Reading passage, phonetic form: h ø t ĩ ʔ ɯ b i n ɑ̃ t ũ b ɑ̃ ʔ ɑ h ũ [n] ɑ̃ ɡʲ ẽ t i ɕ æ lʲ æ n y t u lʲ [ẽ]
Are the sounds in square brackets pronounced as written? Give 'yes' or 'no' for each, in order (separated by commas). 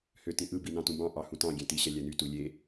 no, no